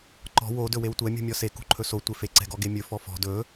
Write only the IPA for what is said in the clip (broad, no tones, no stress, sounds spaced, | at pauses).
ǃ ɔ̤ w o d ɵ w e w tʷ ɛ mʲ ṳ mʲ ɔ s e k ṳ ǃʰ ɵ s o tʷ e f e ǀ ɛ̤ ɡ ɔ ɡ e mʲ ɵ f ɔ f ɔ̤ d ɵ